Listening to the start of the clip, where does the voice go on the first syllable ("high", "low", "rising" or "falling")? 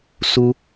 high